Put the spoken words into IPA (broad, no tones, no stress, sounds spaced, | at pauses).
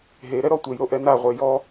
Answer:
ɦ e ɾ ɛ ɾ ɔ tʷ e j ɾ o ʔ ɛ n a ʁʷ e j ɔ